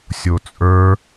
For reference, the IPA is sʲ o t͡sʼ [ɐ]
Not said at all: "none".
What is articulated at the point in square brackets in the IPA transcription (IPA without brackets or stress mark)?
ə˞